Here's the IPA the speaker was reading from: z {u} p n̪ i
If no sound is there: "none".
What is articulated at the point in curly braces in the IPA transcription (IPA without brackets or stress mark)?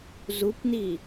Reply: u